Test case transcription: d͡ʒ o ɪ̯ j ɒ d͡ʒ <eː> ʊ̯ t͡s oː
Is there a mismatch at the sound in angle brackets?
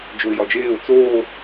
no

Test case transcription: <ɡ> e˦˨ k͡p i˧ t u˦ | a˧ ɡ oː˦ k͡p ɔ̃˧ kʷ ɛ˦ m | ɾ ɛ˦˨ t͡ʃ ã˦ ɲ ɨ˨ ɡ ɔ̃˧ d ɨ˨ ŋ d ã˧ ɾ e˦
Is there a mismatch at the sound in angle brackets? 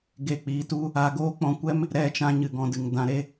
no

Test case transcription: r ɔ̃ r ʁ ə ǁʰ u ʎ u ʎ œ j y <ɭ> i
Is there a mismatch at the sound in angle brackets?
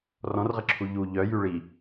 no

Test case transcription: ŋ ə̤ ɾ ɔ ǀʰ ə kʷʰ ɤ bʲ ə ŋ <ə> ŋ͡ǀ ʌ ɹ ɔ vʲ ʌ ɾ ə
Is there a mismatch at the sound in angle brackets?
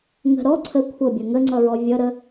no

